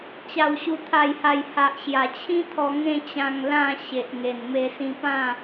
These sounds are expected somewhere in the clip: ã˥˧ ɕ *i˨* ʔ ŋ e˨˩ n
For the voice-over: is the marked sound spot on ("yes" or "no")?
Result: no